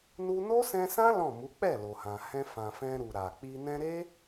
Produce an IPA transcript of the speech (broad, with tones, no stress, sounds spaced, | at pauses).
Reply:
n u˧ n o˦ s ɛ̃˧ s ã˦ l ɔ̃˦˨ m u˨˦ k͡p ɛ˦˨ l o˨ h ã˨ h ɛ̃˧ f ã˨ f ɛ̃˧ ɾ u˨ ɾ a˨ k͡p i˧ n ɛ̃˧ ɾ e˦